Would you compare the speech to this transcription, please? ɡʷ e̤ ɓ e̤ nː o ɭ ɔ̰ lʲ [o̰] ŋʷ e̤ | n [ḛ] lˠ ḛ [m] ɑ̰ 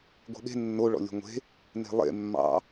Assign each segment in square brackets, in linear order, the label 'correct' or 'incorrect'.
incorrect: o̤, incorrect: e̤, incorrect: mː

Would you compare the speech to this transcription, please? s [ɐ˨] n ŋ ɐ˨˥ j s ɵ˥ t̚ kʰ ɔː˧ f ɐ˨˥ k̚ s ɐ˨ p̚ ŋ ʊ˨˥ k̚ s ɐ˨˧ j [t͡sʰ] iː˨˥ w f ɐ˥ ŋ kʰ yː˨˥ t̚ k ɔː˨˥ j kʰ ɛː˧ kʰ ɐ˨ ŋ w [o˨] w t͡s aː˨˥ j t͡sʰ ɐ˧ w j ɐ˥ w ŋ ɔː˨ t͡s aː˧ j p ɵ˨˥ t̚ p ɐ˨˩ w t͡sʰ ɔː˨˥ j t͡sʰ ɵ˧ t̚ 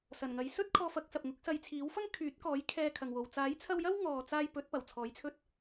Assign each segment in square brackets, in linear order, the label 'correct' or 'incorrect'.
incorrect: ɐ˨˩, correct, correct

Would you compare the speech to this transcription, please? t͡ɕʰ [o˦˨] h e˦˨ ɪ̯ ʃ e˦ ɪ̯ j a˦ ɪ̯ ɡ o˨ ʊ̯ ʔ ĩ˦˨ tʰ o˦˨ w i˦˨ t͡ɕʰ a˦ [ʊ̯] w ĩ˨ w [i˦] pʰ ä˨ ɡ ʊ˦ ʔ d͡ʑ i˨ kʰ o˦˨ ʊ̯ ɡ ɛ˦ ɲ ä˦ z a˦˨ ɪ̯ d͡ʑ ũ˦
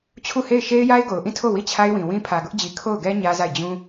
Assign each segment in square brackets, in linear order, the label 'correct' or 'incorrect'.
incorrect: u˦˨, incorrect: ɪ̯, incorrect: ĩ˦

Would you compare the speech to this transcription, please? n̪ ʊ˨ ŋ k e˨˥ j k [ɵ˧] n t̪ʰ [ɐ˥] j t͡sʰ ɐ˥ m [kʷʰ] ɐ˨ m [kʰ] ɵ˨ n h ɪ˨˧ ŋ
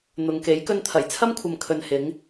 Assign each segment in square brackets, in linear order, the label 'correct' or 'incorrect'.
correct, incorrect: ɐ˨˩, correct, correct

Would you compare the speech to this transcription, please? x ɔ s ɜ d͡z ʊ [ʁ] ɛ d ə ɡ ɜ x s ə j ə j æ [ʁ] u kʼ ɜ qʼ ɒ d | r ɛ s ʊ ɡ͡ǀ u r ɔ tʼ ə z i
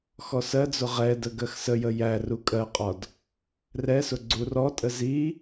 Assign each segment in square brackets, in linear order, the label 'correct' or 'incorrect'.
correct, incorrect: r

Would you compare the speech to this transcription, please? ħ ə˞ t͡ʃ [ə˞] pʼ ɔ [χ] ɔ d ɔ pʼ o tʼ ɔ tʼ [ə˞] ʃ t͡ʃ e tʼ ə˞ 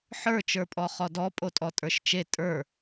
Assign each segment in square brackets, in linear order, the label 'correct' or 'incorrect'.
correct, correct, correct

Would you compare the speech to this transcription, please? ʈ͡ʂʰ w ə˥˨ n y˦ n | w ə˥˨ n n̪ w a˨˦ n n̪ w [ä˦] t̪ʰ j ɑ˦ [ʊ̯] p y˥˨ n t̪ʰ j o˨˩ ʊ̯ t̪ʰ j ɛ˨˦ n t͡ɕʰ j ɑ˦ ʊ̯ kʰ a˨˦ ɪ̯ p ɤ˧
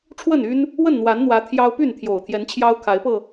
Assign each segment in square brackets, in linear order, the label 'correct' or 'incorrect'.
incorrect: ä˨˦, correct

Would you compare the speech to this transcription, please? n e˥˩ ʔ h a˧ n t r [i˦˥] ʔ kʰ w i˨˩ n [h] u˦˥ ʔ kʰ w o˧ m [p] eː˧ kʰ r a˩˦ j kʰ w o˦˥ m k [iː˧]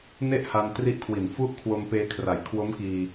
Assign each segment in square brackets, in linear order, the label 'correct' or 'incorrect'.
correct, incorrect: f, correct, correct

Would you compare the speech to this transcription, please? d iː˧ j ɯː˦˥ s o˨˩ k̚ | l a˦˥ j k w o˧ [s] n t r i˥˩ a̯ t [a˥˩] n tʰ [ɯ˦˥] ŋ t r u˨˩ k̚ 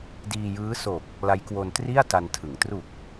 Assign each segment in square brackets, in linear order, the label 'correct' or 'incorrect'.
incorrect: none, incorrect: a˧, incorrect: ɯ˩˦

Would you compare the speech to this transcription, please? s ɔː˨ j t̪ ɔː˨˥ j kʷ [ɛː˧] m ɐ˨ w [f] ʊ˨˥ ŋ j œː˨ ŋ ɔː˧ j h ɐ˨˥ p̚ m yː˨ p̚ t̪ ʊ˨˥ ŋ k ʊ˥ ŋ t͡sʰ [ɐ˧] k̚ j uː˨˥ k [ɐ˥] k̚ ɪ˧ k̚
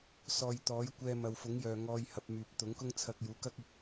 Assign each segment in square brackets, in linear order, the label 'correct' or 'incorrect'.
correct, correct, correct, correct

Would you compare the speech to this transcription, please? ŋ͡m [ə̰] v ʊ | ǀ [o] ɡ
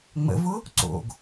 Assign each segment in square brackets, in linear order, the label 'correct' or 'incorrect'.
correct, incorrect: o̰

